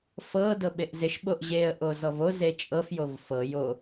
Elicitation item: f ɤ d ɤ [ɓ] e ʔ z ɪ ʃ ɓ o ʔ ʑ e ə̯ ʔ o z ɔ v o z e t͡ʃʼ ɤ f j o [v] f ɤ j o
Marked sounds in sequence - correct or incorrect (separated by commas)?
correct, correct